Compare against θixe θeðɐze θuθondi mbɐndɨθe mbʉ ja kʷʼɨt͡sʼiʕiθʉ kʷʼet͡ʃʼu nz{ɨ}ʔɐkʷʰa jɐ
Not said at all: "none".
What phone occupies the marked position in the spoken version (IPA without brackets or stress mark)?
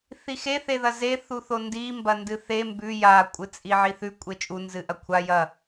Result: ɨ